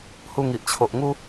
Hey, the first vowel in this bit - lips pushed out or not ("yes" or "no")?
yes